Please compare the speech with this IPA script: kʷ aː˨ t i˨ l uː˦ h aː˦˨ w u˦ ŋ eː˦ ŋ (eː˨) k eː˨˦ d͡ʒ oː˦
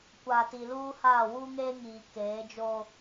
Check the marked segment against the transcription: incorrect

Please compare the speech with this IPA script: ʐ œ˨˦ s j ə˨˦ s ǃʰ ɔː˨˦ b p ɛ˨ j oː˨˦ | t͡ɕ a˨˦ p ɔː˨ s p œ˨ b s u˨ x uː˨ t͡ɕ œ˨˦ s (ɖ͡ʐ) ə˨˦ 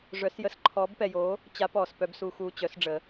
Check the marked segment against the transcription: correct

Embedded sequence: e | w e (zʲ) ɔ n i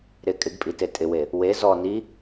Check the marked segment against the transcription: incorrect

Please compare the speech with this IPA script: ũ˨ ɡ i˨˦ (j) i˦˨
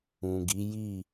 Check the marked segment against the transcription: correct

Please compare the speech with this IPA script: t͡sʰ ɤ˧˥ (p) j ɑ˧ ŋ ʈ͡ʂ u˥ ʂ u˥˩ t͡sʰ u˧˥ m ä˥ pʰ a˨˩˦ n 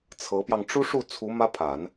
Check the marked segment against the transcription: correct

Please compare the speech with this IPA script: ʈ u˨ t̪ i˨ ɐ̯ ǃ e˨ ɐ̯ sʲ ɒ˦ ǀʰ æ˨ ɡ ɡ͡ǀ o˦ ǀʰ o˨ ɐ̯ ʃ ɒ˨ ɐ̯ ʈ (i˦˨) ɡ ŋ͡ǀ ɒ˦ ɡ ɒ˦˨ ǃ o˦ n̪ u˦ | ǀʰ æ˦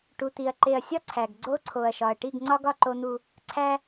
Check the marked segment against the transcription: correct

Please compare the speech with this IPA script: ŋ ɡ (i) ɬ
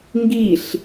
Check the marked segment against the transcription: correct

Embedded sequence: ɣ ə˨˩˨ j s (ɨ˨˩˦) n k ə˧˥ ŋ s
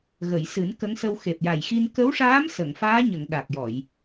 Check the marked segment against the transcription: correct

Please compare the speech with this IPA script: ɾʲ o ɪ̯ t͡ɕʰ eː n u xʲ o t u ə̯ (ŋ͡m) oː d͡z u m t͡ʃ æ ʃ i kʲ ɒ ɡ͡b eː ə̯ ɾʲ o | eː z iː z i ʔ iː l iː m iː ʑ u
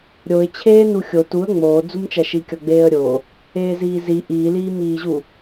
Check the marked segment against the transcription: correct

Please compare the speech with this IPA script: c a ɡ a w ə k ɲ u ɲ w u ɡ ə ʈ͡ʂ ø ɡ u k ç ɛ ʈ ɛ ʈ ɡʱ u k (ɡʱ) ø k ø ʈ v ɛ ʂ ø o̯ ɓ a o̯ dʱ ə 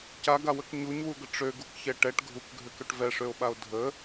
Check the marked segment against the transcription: correct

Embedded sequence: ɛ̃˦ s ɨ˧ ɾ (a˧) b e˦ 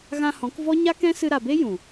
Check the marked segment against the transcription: incorrect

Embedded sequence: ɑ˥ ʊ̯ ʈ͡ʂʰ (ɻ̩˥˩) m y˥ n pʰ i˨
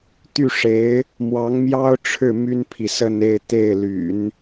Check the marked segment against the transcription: correct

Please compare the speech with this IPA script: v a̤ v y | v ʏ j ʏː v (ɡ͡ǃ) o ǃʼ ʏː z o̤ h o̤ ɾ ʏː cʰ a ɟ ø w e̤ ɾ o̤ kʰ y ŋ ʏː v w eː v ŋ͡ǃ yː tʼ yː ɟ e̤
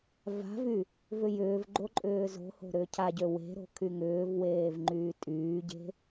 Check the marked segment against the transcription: correct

